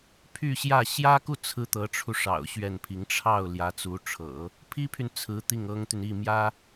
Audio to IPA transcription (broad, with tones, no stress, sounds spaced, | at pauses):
pʰ y˥˧ ɕ j ä˥˩ ɕ j ä˥ k u˥˩ t͡sʰ ɹ̩˥ t̪ ɤ˧˥ ʈ͡ʂʰ u˧ ʂ ɑ̰˨˩ ʊ̯ ɕ ɥ ɛ˥˩ n pʰ i˧˥ ŋ ʈ͡ʂʰ ɑ˥˩ ʊ̯ l j ä˧˥ t͡s u˧˥ ʈ͡ʂʰ ɤ̰˨˩˦ | pʰ i˥ pʰ y˨ n t͡sʰ ɹ̩˧˥ t̪ i˥˩ ŋ ɤ˥ ŋ t̪ y˨ n i˥˩ m j ä˥